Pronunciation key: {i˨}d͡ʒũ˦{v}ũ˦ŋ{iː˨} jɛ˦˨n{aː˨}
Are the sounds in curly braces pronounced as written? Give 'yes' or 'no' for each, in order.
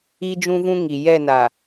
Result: no, yes, no, no

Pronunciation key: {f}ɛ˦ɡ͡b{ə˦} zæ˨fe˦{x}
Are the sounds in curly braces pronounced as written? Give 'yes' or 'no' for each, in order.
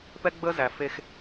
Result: no, yes, yes

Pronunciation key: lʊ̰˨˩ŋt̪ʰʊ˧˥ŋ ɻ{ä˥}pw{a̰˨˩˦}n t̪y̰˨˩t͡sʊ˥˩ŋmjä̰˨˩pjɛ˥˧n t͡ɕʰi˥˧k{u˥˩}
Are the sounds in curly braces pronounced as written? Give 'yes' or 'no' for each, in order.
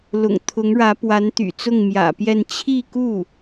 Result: no, no, yes

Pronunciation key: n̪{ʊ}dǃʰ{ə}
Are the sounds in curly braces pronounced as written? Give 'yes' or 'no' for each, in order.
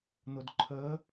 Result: yes, yes

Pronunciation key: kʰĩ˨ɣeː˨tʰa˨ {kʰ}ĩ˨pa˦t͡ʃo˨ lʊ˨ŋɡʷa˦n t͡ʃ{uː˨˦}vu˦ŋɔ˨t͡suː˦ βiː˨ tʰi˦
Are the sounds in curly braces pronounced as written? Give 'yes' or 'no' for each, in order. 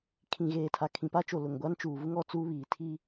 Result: yes, no

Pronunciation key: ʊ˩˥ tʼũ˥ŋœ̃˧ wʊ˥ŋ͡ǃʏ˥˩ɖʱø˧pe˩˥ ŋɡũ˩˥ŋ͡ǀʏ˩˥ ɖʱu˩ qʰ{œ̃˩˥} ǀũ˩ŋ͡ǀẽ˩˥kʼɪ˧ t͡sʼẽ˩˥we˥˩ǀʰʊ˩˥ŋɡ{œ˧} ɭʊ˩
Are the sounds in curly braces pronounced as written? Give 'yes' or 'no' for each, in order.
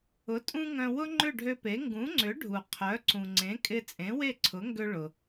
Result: no, no

